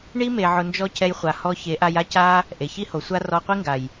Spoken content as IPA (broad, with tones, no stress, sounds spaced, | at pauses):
ɳ i˦ m e˧ ʕ ʊ˧ n d͡ʒ ɔ˦ c ɛ˧ j χʷ a˨ h ɔ˧ ç e˨˦ ʔ a˧ j a˦ c a˦ | ʔ e˨ ç i˦ h o˨ sʷ a˦ r ɔ˧ qʷ i˦ ŋ ɡ a˨ j